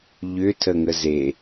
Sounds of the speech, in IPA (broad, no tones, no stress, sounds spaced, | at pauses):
ʎ ʏ tʰ ə ŋ ə z e